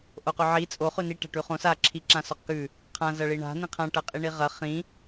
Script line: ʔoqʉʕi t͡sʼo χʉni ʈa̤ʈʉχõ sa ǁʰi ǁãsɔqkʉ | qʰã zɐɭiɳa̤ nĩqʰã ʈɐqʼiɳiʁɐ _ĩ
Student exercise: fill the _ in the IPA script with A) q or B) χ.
B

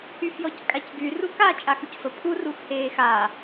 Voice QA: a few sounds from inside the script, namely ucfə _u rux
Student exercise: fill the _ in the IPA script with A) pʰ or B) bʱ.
A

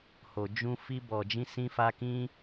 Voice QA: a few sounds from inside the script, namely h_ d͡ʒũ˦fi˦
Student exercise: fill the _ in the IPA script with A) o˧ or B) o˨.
A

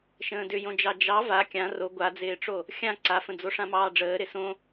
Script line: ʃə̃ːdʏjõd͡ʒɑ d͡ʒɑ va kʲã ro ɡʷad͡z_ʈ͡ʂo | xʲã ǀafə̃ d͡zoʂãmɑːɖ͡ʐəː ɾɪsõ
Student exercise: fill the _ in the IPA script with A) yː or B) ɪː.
B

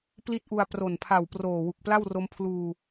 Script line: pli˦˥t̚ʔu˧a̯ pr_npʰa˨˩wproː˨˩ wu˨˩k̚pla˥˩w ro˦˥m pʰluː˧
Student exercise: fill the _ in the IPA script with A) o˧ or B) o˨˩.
B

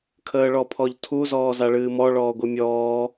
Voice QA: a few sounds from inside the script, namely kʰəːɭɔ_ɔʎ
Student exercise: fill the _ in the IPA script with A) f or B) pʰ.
B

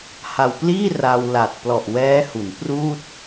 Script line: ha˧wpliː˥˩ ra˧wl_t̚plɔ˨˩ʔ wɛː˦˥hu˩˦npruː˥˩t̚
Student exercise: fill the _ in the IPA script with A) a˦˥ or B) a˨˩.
B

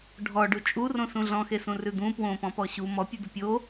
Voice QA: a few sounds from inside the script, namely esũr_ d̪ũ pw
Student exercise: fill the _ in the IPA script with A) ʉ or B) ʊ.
A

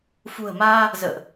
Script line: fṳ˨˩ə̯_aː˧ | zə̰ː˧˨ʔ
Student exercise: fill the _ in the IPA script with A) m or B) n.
A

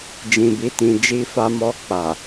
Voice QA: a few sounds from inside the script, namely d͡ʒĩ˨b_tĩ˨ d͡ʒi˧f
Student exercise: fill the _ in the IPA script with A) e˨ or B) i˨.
B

